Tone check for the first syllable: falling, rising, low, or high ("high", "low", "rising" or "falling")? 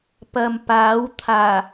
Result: low